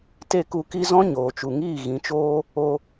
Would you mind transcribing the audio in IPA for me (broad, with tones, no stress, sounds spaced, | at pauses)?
t e˦˨ k u˧ k i˦ z ɔ̃˦ ɲ oː˨ t͡ʃ u˨ ŋ iː˦˨ ɣ ĩ˨˦ t͡ʃ oː˦ | o˧